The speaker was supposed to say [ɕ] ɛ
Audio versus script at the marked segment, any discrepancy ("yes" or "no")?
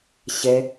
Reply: no